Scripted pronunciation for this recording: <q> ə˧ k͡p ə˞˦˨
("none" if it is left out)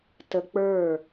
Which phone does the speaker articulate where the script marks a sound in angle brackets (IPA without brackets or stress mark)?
t